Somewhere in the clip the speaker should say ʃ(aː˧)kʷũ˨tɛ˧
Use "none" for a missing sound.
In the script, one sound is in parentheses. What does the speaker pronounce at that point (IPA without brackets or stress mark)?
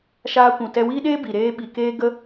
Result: aː˧